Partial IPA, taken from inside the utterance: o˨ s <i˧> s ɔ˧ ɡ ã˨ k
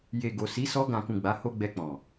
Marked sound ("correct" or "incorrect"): incorrect